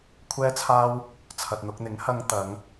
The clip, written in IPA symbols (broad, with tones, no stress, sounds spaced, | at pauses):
kʷʰ ɛː˥ t͡sʰ aː˥ w | t͡sʰ ɐ˨ t̚ n̪ ʊ˧ k̚ n̪ ɪ˨˥ ŋ h ɐ˧ ŋ t̪ ɐ˨˧ ŋ